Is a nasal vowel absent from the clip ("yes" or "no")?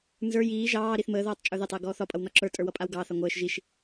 yes